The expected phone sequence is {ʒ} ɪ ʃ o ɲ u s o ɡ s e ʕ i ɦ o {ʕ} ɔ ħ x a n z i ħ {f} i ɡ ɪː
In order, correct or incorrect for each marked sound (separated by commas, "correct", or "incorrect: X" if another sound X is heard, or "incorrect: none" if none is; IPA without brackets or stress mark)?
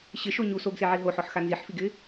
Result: incorrect: ɕ, incorrect: ħ, correct